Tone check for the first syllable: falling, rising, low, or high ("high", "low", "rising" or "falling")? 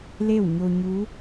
falling